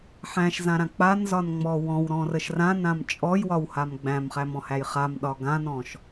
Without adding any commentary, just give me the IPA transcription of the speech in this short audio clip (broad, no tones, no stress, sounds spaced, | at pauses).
ħ æ̃ ʃ z ã ɾ ã k͡p a n z ɒ n ŋ͡m ɔ w ɔ̃ w ɾ ɔ̃ r ə ʃ r ã n ã m t͡ʃʼ ɔ j w ɒ w h a m ɡ͡b æ̃ m χ æ m ɔ̃ h æ j χ a m ɗ ɒ ɡ ã n ɔ̃ ʃ